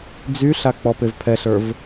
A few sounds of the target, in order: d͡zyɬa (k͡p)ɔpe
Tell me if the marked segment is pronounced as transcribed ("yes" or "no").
yes